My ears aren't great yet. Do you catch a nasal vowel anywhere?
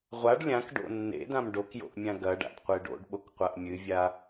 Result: yes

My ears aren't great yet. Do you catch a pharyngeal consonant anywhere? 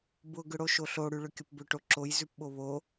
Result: no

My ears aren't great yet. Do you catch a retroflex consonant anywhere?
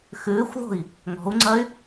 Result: no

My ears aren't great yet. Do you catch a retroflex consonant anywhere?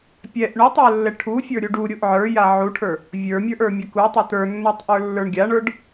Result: yes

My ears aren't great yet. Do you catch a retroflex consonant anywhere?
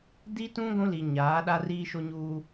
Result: no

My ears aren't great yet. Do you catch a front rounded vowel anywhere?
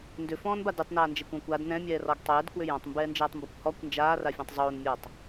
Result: yes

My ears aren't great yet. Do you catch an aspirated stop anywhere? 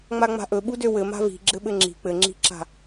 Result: no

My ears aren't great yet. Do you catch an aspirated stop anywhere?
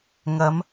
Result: no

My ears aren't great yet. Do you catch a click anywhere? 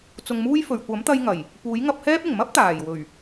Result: no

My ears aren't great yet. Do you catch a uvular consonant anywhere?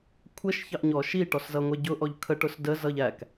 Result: no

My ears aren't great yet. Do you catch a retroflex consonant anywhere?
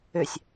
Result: no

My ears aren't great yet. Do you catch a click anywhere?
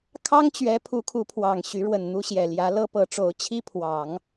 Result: no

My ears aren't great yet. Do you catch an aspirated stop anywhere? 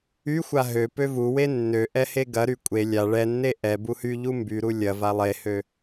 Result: no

